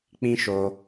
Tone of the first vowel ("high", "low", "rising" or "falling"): high